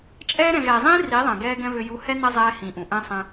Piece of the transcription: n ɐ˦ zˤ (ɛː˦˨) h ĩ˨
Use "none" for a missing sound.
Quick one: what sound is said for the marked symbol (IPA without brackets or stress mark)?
ɛː˦